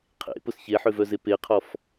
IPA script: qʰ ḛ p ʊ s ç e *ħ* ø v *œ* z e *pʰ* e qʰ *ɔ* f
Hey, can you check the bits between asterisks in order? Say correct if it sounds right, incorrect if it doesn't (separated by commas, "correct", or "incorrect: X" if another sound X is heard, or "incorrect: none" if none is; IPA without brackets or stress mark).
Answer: correct, correct, incorrect: p, correct